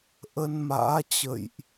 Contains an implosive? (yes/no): no